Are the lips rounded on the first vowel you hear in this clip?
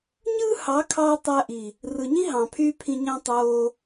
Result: no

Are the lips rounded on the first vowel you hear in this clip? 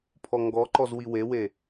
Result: yes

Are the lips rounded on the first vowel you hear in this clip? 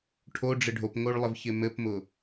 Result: yes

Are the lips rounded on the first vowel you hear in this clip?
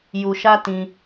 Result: yes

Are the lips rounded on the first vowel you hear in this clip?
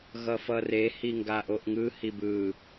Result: no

